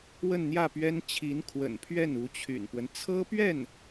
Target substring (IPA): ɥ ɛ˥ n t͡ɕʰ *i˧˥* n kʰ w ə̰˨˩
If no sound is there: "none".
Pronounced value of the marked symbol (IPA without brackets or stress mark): i˧˥